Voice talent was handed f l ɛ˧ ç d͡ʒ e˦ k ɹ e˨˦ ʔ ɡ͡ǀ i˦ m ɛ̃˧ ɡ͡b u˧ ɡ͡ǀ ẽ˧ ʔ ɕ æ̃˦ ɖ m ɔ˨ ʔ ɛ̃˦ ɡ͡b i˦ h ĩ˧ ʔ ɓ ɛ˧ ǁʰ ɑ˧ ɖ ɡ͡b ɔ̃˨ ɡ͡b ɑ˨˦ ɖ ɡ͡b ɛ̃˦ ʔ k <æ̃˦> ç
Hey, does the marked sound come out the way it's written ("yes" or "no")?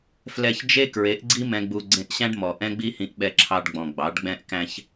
yes